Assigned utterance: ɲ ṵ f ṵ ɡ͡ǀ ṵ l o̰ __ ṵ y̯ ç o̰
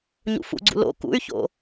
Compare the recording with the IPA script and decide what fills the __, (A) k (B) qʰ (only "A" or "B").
A